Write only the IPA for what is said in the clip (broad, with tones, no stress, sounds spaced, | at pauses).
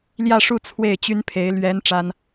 l j ä˥˧ ʂ u˥˧ t͡sʰ w e˥˩ ɪ̯ t͡ɕ y˥ n pʰ e˧˥ ɪ̯ l ɥ ɛ˧˥ n ʈ͡ʂ a˥ n